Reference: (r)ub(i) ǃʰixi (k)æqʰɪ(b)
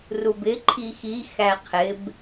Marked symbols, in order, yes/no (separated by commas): yes, no, no, yes